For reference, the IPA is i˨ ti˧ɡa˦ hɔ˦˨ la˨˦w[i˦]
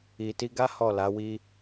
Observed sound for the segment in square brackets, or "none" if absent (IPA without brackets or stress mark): i˦